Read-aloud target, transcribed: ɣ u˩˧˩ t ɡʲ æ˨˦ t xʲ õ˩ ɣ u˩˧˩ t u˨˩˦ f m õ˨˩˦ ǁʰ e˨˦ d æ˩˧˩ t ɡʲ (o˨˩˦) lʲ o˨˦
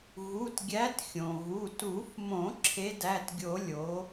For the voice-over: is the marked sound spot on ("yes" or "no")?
yes